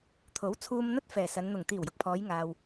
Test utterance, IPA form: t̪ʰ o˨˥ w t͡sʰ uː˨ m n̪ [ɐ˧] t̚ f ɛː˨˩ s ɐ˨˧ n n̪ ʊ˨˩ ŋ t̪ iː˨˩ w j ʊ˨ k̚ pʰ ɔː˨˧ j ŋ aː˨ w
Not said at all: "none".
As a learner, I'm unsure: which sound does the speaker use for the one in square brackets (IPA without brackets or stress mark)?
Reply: ɐ˧